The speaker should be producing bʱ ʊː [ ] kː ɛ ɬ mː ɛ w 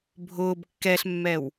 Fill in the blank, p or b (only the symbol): b